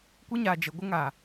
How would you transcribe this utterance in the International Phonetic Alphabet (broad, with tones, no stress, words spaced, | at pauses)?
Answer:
kʷi˦ɲaː˨ d͡ʒe˨ɡʷə˦ŋaː˨